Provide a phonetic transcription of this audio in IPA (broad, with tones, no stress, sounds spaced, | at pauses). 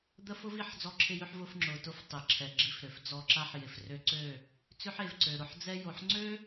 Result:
d̪ ə˦ f ʊ˦ v i˨ ħ d͡z ɔ˦ ǁʰ ɪ˦ j ø˦ ħ v ʊ˧ f ŋ͡ǁ ʊ˨ t ʊ˧ f tˤ e˨ ǁʰ ɛ˨ ɡ͡ǁ i˧ f ɾ ø˨ f d͡z ɔ˧ ǁ a˦ ħ j ɪ˨ f r ø˧ ǀ ø˦˨ | t͡s ʏ˦ ħ e˨ v ǀ ø˨ ɾ ʊ˧ ħ d͡z ɛ˦ j o˨ ħ ŋ͡ǀ ø˦